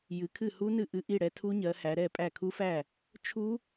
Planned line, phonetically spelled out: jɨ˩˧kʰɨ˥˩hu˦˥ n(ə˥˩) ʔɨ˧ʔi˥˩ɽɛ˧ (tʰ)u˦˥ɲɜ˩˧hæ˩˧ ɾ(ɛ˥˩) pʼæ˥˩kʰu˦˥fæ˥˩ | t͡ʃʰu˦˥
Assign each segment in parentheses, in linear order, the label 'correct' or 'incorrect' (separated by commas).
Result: incorrect, correct, correct